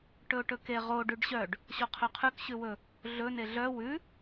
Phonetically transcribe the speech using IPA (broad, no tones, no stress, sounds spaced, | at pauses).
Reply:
ʈ ɵ ʊ̯ ʈ ɵ k e ʁ o ɖ ʉ ɖ ɕ œ ɖ | ɕ o qʰ œ qʰ ʉ k ɕ ʉ w ɵ | ɮ ɵ n e ɮ œ w ʉ